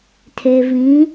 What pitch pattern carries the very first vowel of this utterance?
low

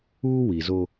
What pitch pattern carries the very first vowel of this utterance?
high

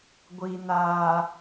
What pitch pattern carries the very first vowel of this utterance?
low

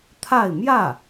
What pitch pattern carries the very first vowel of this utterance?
falling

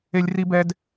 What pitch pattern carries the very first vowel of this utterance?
high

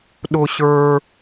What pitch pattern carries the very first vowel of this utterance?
low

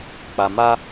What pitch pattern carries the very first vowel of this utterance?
low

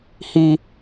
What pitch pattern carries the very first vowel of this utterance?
high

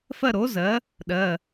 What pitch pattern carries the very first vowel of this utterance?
falling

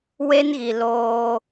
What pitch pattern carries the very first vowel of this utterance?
high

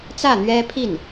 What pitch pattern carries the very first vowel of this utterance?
falling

